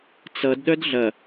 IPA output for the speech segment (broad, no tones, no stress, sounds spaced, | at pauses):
t͡s ʌ d ɗ œ d ɮ ɐ